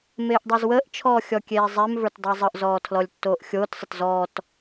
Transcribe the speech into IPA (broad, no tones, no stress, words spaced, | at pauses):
meːʔdˤozwəːʔt͡ʃʰɔː xʲɔkʲeːzˤemvə˞t dˤə˞zˤəʔzɔː tʰlɔlʲtːoːʔxʲoːtsˤət zɔːt